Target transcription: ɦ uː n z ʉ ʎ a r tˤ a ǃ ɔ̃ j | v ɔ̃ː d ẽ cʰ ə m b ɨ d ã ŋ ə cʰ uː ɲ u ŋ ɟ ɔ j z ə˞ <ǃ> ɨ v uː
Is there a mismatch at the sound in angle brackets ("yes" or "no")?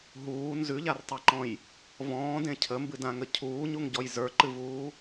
no